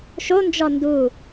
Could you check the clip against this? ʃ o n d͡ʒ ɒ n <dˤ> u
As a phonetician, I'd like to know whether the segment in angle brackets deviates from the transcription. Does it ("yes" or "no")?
yes